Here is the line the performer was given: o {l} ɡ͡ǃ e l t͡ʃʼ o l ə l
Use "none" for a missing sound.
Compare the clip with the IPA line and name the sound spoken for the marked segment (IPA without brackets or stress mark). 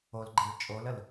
l